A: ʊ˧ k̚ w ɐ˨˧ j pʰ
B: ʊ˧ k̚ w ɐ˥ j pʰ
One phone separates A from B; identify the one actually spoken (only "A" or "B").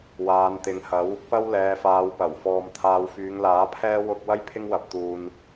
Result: B